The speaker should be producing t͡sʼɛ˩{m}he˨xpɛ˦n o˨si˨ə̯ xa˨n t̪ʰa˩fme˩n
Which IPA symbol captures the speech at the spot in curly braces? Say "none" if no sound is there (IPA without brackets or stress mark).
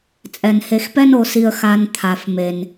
n